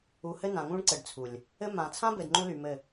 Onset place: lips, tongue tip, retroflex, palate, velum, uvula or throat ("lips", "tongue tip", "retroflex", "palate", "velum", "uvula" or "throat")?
throat